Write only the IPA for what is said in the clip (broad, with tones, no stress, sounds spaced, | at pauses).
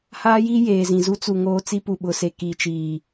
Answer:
h aː˦ j i˦ j eː˨ z ĩ˨ z u˦ t͡s u˨ ŋ oː˦ t͡s i˦ p u˨ ɓ ʊ˨ s e˨ k i˨ t͡ʃ iː˨